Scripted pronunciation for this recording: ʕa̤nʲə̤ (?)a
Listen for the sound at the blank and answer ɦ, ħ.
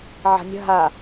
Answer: ɦ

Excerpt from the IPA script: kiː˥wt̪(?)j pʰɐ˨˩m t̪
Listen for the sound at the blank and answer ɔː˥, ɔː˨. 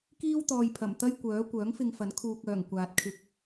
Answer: ɔː˨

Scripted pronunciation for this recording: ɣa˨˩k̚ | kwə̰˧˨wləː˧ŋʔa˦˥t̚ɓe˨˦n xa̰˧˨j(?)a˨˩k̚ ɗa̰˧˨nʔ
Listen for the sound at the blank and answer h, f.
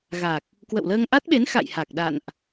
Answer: h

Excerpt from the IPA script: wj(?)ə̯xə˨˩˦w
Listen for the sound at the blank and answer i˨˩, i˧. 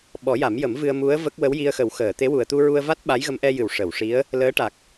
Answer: i˧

